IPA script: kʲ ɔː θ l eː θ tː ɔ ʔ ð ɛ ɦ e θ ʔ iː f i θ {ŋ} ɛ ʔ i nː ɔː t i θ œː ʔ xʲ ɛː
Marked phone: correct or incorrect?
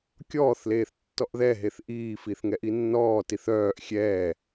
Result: correct